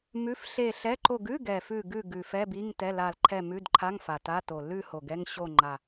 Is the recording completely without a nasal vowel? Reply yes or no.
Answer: yes